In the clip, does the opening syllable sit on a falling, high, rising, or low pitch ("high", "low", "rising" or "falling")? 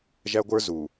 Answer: high